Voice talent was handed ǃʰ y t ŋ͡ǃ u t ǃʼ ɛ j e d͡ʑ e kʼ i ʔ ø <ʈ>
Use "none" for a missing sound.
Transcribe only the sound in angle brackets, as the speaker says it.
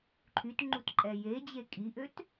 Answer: t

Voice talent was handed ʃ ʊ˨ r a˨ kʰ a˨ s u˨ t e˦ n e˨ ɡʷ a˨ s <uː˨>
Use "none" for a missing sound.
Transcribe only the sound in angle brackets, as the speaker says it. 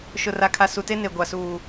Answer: uː˨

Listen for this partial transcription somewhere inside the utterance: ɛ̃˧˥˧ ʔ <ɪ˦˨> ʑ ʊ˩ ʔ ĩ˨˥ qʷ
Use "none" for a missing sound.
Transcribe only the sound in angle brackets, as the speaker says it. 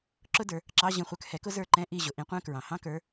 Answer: i˦˨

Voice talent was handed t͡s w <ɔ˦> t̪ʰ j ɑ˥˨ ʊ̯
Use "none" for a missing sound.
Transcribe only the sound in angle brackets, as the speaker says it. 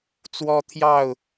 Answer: ɔ˦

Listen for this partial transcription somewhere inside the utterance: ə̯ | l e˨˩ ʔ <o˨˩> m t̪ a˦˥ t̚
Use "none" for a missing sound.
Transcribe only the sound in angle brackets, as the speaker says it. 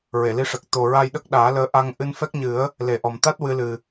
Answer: ɔ˨˩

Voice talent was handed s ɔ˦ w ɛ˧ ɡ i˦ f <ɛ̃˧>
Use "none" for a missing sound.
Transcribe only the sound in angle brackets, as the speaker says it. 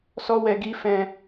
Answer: ɛ̃˧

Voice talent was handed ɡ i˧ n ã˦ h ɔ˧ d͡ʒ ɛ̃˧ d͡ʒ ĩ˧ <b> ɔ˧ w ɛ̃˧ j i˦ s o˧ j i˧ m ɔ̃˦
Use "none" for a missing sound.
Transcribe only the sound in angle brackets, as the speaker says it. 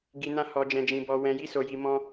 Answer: b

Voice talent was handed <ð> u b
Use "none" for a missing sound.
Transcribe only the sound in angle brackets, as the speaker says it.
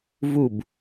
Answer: v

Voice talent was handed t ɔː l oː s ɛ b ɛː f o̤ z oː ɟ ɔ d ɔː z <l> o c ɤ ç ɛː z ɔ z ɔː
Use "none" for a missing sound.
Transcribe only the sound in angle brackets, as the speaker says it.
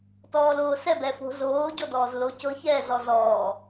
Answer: l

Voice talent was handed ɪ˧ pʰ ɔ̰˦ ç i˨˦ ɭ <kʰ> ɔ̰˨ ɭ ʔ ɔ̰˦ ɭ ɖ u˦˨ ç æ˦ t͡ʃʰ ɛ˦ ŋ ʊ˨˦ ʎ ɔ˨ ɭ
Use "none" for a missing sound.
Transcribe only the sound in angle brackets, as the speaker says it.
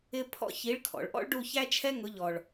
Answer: kʰ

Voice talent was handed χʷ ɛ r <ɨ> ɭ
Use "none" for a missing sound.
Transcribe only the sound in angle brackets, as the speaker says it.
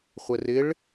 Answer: ɪ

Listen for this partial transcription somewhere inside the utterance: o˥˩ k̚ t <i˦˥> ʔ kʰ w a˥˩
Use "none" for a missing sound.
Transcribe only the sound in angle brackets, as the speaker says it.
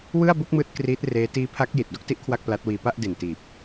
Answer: i˦˥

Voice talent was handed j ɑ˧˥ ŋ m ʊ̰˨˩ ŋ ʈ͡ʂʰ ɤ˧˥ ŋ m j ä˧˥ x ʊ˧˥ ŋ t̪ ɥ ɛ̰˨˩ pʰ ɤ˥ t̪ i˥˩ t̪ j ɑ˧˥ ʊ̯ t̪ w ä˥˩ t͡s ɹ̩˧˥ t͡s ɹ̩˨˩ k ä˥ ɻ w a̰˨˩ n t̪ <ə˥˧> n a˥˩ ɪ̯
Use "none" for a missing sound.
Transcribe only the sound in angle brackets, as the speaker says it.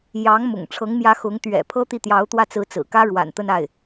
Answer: ə˥˧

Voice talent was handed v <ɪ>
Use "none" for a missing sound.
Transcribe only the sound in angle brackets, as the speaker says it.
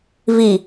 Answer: i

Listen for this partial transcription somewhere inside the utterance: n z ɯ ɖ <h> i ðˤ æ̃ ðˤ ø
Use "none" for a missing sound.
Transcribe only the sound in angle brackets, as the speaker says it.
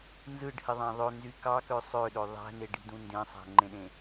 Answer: h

